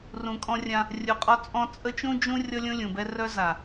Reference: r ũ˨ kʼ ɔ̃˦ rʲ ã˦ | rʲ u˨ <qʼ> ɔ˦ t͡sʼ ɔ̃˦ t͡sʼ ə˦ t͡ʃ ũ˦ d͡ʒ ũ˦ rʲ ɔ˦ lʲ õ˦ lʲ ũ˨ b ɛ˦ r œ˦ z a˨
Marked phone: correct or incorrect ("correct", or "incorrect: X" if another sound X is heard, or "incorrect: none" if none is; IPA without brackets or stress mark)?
correct